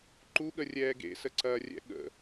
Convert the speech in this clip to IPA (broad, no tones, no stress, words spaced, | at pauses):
ǃuɠərʲɛː ɡḛsəǀɐːrʲɛ̰ ɠə̰